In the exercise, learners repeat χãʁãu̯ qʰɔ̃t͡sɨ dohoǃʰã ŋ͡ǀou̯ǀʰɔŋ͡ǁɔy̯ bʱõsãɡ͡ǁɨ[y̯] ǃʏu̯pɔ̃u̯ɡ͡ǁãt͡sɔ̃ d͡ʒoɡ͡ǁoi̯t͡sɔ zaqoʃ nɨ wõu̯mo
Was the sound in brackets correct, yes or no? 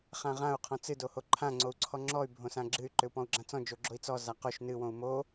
yes